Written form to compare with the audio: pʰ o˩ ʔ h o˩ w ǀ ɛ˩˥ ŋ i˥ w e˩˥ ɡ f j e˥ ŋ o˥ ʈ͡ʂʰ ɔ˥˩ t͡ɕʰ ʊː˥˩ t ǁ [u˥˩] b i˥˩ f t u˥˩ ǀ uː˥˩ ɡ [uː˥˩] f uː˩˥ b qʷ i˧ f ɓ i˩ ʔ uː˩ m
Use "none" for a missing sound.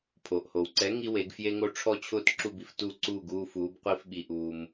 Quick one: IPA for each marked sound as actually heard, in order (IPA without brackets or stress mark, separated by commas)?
u˥˩, uː˥˩